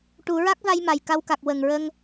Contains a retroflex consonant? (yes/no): yes